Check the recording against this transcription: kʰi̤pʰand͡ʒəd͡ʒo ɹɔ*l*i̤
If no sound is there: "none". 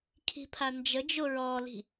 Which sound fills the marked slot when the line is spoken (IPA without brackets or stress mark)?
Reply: l